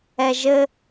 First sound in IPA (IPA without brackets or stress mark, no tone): ɛ